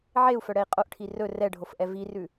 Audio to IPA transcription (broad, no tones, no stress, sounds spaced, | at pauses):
ʕ e u̯ f œ ɽ ɛ i̯ qʼ o ʔ ʈʰ i r ɵ r ɛ ɖʱ o f ʔ ɛ v i r ʉ